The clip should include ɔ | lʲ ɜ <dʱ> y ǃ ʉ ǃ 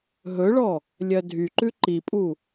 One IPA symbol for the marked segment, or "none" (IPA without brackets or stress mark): dʱ